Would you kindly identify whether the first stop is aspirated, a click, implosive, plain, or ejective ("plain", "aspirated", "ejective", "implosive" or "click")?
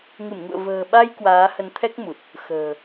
implosive